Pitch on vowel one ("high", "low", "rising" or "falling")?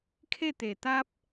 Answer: falling